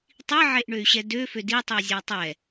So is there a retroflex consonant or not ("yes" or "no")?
yes